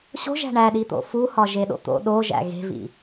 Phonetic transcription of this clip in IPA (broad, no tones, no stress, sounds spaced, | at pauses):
ɕ o̤ ʒ æ̤ ɳ æ ɗ i t̪ o̰ f u h ɒ ʒ e ɗ o̰ t̪ o̰ ɗ o ʒ æ̰ ɣ e̤ v ḭ